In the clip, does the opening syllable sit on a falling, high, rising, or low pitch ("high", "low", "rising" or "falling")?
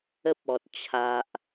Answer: high